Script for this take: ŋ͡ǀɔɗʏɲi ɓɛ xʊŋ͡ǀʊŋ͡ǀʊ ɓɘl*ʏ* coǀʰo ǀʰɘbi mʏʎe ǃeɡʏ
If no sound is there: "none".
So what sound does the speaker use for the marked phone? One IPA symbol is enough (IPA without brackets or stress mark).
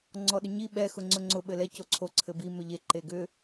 ɛ